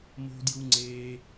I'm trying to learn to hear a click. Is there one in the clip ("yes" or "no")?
yes